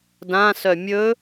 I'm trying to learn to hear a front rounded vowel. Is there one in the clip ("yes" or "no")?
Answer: yes